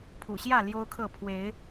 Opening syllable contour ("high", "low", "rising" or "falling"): low